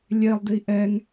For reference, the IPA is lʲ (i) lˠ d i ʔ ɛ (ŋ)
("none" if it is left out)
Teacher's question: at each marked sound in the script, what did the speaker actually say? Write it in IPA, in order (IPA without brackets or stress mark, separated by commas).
e, ŋ